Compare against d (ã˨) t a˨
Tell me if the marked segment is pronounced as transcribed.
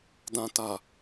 yes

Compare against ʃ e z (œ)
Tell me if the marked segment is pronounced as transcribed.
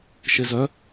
yes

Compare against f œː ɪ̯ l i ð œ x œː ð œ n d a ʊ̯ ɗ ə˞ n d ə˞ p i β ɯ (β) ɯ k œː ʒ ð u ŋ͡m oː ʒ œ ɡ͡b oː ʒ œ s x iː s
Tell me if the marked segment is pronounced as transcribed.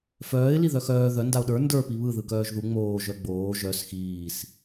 no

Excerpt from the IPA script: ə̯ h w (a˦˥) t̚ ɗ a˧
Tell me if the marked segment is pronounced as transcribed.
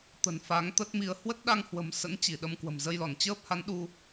no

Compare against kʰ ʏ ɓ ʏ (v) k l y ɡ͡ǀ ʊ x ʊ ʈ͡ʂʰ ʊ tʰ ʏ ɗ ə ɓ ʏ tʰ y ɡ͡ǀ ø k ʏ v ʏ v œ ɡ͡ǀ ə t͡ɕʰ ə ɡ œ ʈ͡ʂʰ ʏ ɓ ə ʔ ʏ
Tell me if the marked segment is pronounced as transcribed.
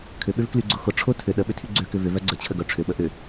yes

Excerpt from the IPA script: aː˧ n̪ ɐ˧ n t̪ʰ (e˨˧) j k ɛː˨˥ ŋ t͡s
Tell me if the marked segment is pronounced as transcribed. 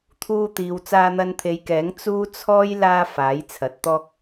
yes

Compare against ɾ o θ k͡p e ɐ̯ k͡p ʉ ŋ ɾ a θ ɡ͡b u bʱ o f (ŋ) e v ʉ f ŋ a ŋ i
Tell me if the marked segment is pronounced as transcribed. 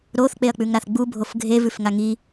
no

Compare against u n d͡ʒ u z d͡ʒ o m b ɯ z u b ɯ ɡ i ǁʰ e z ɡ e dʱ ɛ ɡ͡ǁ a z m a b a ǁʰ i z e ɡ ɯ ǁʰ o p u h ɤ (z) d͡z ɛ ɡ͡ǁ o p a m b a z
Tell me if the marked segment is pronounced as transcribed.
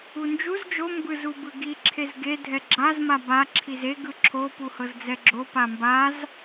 yes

